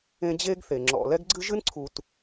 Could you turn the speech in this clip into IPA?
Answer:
ẽ˦ d͡ʑ e˥ ɡ θ e˩ ŋ͡ǁ ɔ̰˨ l ɛ˥ ɡ ɡ͡ǀ ɨ˥ ʒ ɨ˥ n ǀʰ u˨ t

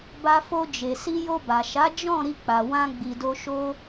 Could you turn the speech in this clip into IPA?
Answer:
b a˧ f o˧ d͡ʒ e˨ s i˧ j o˧ b a˨ ʃ a˨˦ d͡ʒ ɔ̃˦˨ ɾ i˧ k͡p a˨ w ã˧ ɡ͡b i˧ d o˦ ʃ o˧

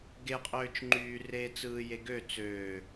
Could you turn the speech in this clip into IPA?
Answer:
ɡ e qʼ øː t͡ʃ ŋ͡ǃ yː r eː t͡s ɯː j e ɡ ø t͡s øː

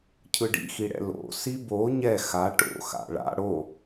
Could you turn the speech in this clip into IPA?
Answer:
cʰ ɯ ɖ ḭ x i ɽ ɛ̰ l o̰ s i b o ɲ ɛ x a ʈ o̰ x a̰ ɭ a̰ ɽ o

